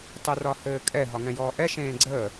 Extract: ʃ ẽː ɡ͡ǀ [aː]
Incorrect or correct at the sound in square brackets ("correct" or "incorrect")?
incorrect